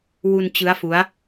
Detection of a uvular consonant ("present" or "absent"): absent